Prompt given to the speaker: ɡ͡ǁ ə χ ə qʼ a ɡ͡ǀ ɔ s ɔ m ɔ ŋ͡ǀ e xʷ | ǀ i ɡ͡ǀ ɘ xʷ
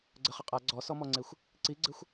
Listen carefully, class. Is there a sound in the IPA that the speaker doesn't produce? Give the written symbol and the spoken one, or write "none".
ɡ͡ǁ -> ɡ͡ǀ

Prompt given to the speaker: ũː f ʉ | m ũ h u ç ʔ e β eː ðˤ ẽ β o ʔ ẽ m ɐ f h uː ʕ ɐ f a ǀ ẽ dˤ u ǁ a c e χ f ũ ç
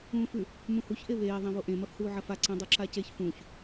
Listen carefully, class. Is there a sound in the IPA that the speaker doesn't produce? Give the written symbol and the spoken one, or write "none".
χ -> ç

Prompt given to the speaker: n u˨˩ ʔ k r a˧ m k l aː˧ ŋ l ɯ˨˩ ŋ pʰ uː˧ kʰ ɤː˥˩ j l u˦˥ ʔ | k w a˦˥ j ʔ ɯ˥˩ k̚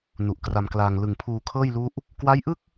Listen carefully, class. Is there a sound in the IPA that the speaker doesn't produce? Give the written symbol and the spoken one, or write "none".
none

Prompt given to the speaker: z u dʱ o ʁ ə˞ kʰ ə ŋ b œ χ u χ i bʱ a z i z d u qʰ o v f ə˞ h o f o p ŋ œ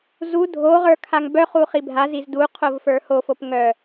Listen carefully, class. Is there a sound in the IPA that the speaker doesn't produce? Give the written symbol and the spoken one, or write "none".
ə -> a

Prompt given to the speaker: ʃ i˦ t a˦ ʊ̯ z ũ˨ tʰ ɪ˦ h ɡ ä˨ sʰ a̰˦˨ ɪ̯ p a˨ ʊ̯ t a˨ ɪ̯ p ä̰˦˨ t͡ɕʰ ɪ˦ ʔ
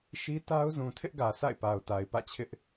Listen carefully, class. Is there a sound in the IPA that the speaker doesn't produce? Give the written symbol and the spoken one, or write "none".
h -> ʔ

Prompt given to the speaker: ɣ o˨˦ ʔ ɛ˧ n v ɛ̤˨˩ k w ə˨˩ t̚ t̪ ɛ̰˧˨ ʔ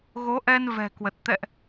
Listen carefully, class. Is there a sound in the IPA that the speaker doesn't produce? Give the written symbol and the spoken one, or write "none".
none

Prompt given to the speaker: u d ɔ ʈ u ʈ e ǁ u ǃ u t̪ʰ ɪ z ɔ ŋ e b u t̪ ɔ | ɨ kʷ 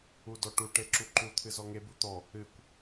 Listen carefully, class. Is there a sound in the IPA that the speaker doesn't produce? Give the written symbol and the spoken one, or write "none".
ɪ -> ɨ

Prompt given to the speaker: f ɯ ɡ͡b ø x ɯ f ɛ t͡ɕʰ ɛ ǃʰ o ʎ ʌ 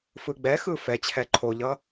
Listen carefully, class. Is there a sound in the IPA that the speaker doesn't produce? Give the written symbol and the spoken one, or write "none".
ø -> ɛ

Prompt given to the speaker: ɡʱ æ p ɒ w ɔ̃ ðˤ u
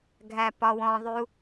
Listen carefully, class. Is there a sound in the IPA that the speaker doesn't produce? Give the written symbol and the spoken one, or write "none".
none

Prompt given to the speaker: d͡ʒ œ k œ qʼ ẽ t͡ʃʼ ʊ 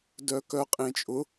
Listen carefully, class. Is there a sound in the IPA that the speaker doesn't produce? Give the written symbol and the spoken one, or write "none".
d͡ʒ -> d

